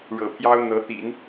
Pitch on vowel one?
low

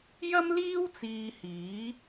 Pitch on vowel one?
high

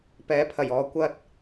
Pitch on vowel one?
rising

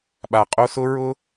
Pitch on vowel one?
low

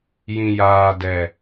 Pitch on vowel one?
low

